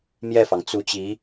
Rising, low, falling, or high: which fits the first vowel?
falling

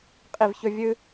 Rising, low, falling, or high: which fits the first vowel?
falling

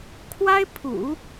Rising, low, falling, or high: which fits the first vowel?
high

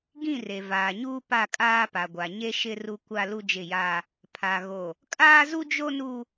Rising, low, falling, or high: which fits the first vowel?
falling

